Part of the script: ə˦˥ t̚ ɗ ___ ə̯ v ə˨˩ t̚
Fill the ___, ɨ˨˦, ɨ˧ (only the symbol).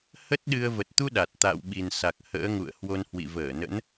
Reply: ɨ˧